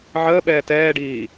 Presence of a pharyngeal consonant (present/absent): present